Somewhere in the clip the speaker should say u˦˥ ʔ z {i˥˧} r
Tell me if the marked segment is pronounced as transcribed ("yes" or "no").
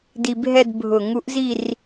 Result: yes